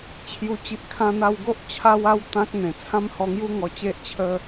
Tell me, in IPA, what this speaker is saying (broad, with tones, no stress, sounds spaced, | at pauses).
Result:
t͡ɕʰ j u˨˩ t͡ɕ i˨ ʔ kʰ ã˧ n̪ a˧ w ɡ o˦ ʔ t͡ɕʰ a˦ w a˦ w t̪ ã˦ k̚ n̪ ẽ˨˩ t͡sʰ ã˦ m h ɔ˧ ŋ j u˦ ŋ ɔ˧ t͡ɕ e˦ ʔ t͡ɕʰ ə˦